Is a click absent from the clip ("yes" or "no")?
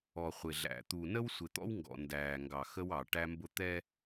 yes